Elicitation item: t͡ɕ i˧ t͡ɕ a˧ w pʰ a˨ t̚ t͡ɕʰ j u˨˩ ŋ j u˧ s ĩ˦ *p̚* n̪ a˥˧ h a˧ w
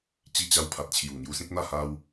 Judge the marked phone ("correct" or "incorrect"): incorrect